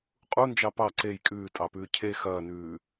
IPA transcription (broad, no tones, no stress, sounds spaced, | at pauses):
qʼ u n d͡ʒ ɑ p ɑ ǀ e j kʼ ʉː tʼ ɑ p ʉː cʰ e x ɐː n ʉː